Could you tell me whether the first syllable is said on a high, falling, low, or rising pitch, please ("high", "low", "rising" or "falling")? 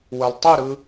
low